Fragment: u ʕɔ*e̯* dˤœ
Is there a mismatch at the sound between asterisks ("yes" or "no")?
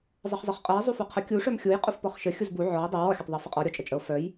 yes